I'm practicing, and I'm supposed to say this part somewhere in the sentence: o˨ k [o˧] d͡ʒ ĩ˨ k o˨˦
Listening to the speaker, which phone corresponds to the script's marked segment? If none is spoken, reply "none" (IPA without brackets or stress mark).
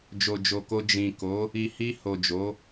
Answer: o˧